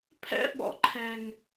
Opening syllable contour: high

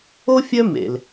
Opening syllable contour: high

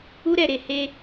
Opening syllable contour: high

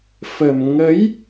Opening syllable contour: low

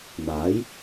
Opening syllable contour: rising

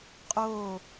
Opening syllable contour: falling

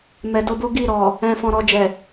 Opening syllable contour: low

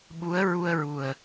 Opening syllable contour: rising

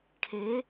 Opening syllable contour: rising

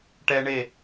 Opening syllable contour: high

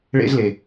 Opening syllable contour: high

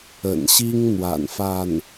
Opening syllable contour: low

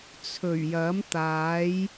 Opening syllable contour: low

